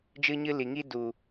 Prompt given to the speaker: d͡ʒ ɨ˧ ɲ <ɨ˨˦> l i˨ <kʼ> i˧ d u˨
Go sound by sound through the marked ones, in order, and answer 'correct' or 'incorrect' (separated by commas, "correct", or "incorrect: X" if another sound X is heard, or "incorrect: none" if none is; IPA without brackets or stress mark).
incorrect: ɨ˧, incorrect: ŋ